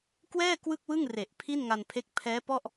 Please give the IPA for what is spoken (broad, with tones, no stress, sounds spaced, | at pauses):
k w ɛː˥˩ k w ɯ˥˩ k̚ w ɯ˥˩ ŋ r e˨˩ ʔ pʰ i˥˩ n ŋ a˧ n pʰ e˦˥ k̚ pʰ ɛː˦˥ p ɔ˥˩ ʔ